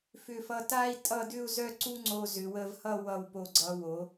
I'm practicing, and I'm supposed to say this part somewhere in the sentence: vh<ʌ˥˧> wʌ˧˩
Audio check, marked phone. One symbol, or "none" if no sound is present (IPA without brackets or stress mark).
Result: ʌ˥˧